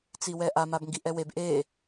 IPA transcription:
t͡s i w ɛ ʔ a m a b ŋ ɡ i ʔ ɛ w e b ʔ e

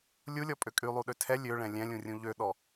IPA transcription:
lʲ u lʲ ɔ pʼ ø kʼ y lˠ u ɗ ø tʰ ɛ lʲ ø ɭ ɛ̃ lʲ ɛ̃ lʲ ũ rʲ ũ ʎ ø ɗ ɔ

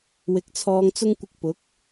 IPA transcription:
w ɪ˨˥ k̚ t͡sʰ ɔː˧ ŋ t͡s ʊ˥ ŋ kʷ ɪ˧ k̚ p ʊ˨˥ k̚

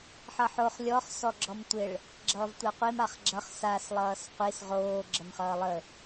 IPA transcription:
ħ ʌ ħ o χ lʲ ɔ χ s ɔ ɡ͡ǁ ɔ m tʷ ɪ ɭ | ɡ͡ǁ ʌː v tʷ a qʷ i m a χ ɡ͡ǁ ʌ χ s a s lˠ ʌː s qʷ i s ʁ oː ɡ͡ǁ ə m χ ʌː lˠ ə

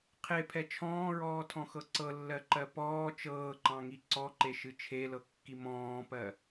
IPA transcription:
qʰ e pʰ ɛ t͡ʃʰ ɔ̃ː ɹ ɔː tʰ ɔ̃ x ɤ ǀ ɤ lː ɜ ǃ ɜ p ɔː t͡ʃ ɤː ǃ ɑ̃ ŋ i ǀ ɔ ǃ e ʃ ɨ t͡ʃʰ e l ɤ kː i m ɔ̃ː p ɜ

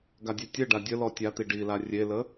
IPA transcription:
ɡ a dʲ e tʲ ɘ ɖ a dʲ ə l ɔ tʲ a t̪ i ɖ i l a rʲ e l ə

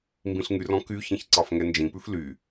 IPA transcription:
m b ĩ ɬ ŋ y r ɔ̃ k y ç ĩ ç ǀ ɑ f ŋ ɛ n d͡ʒ ĩ p ʉ f l y

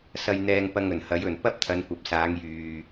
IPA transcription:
s ɐ˧ j n̪ ɛː˧ ŋ p ɐ˧ ŋ ɵ˨˩ n h ɐ˨˥ j ɵ˨˩ n p ɐ˥ p̚ t̪ʰ ɐ˨˧ n kʷ ɐ˨˥ p̚ s aː˨˧ ŋ j yː˨

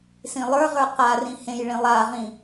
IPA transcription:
s ĩ lˠ ə˞ ʁ ə˞ q a r ĩ h ẽ j ɭ ĩ lˠ a ʁ ĩ

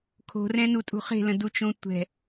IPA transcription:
kʰ o̤ r ɛ̃ n u tʼ ṳ χ e̤ l ə̃ d u t͡ʃ õ tʷ ɛ̤

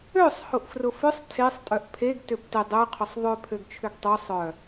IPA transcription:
ø sˤ h ʊ ʔ f r ʊ f ʏ sˤ tʰ e sˤ tʼ œ ʔ pʰ e ɡ t ø p t ɪ dˤ ø qʰ ʊ sˤ ðˤ ø pʰ ø ɡ t͡ʃʰ ʏ ɡ tˤ ø sˤ œ

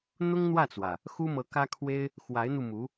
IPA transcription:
n̪ ʊ˥ ŋ n̪ w ä˥˩ t͡s w ä˩ | x u˥ m ɤ˧˥ k ä˥ kʰ w e˥ ɪ̯ | x w a˧˥ ɪ̯ n̪ u˧ m u˧˥

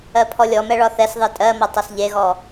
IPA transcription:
ɜ pʰ ɔ lʲ ɔ m ɛ ɭ ɒ θ ɛ s ðˤ e tʼ ɜ m ʌ tˤ ʌ s ʎ e ɣ ɔ

